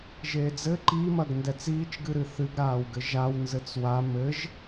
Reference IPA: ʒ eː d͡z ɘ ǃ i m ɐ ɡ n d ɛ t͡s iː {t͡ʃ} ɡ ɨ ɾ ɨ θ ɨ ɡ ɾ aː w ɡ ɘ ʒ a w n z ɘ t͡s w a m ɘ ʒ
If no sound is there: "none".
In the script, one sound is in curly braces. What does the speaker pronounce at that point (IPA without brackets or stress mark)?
t͡ʃ